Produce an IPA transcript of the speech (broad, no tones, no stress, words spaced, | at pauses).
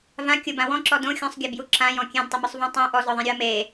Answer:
vã kʲʊbã wɔ̃ǁɔ dõ xʲɔ̃sˤɡʲabju ǁãjɔ̃ kʲẽdtˤʊmʊsˤvɔ̃ tˤũ ʔɔzɔðˤẽɾʲoɐ̯ me